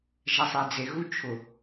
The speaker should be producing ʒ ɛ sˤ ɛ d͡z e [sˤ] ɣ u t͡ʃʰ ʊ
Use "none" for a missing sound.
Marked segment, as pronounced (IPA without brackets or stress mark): none